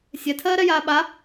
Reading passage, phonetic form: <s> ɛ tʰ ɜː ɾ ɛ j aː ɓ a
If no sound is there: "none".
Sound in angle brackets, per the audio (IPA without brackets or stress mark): sʲ